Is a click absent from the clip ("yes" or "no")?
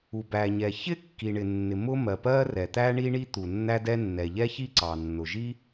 no